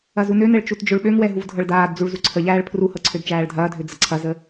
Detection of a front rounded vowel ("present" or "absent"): present